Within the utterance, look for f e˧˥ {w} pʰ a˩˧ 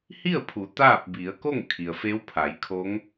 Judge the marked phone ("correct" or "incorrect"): correct